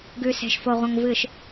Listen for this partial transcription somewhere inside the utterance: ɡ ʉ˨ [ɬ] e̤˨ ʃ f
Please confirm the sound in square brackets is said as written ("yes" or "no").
no